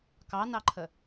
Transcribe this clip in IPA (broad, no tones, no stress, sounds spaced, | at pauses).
k ɑ n ɑ ǃʰ ə